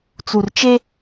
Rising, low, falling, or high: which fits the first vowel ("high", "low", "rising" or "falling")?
low